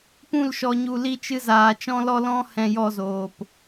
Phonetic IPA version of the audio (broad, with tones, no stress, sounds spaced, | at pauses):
p ũ˦˨ l ʃ ɔ˧ ɲ u˧ l i˦ t͡ʃ ɨ˦ z aː˧ t͡ʃ ɔ̃˦ l ɔ˦ l ɔ̃˦ h ɛ̃˧ j ɔ˧ z oː˨ p